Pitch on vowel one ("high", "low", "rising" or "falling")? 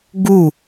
falling